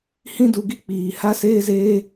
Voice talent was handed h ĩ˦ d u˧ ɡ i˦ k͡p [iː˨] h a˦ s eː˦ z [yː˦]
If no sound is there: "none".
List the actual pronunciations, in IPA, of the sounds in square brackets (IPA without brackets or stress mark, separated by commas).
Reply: iː˨, eː˦